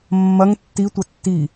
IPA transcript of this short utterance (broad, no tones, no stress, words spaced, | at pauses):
mːɐŋ tːitʷɐ tːi